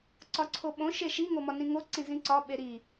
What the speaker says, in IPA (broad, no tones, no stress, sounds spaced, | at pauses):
ǀ ɒ ǀʰ o ɓ õ ʃ e ʃ i ŋ o m ɒ n ĩ ŋ o ǀ ĩ z ĩ ǀ ɒ ɓ e ɾ i